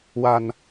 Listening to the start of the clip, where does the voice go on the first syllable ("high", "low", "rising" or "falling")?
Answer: low